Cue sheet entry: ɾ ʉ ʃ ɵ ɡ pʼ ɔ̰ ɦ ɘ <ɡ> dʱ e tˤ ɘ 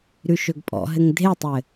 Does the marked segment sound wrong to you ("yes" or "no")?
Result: yes